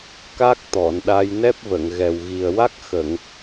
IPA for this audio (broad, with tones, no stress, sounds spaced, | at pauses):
k a˦˥ k̚ t̪ ɔ˨˩˨ n ɗ a˧ j n ɛ˦˥ p̚ v ə˨˩˨ ŋ ɣ ɛ˨˩ w ɣ i˨˩ ə̯ w a˦˥ k̚ x ə˨˩˨ ŋ